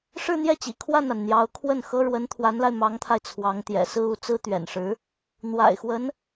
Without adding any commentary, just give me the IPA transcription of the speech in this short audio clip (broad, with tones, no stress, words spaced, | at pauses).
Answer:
ʂɻ̩˥˧n̪jɛ˥˩t͡ɕḭ˨˩ kʰwa˥˩na˩n n̪jɑ˧˥ʊ̯kʰwə˥˩nxɤ˥ ɻwə˧˥nt̪ʰwa˧˥nla˧ɪ̯ mɑ˧˥ŋt̪ʰa˧ɪ̯ t͡sʰwɑ˧˥ŋt̪jɛ̰˨˩ sɹ̩˥˧u˥˩t͡sɹ̩˥ t̪ɥɛ̰˨˩nʂɻ̩˧˥ | n̪wa̰˨˩ɪ̯xwə˧˥n